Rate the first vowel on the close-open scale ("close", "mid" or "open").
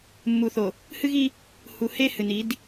close